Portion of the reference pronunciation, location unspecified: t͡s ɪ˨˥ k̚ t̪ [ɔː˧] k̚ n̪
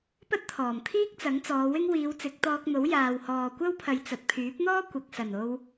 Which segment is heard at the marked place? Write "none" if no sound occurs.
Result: ɔː˧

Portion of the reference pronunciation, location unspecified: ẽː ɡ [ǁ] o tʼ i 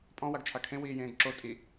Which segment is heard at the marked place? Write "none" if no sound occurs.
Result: ǁ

